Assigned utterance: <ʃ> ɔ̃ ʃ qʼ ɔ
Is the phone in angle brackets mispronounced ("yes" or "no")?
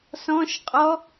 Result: yes